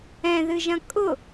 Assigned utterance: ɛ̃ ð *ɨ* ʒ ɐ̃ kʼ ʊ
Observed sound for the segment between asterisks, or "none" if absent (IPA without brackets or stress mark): ɨ